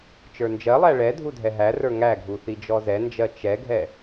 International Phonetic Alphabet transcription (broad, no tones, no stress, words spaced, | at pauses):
t͡ʃə˞nd͡ʒɜlˠæ ɭɛ dʱudʱɛɦærə˞ ŋæɡʱu θid͡ʒɔzɛnd͡ʒɜ t͡ʃɛɡʱɛ